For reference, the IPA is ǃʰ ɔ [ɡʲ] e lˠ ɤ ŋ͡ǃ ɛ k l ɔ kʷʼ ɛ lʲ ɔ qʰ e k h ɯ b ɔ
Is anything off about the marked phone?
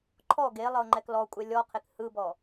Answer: yes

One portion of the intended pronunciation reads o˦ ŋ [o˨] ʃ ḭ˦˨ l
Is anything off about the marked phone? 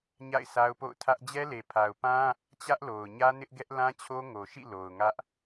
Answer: no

